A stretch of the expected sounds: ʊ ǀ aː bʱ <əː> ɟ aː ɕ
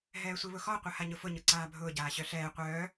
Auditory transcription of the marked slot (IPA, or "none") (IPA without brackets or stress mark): ʊː